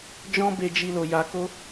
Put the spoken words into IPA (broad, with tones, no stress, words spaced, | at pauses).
d͡ʒɔ̃˦be˧ d͡ʒi˧lo˨ ja˧ko˦